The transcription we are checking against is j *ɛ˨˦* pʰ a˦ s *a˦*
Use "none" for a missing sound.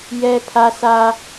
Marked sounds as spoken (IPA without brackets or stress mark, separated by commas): ɛ˦, a˦